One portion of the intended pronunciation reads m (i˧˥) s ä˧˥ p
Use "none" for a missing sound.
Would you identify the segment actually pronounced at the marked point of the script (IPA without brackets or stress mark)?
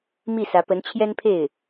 i˥˩